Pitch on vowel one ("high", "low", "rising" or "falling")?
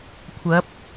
rising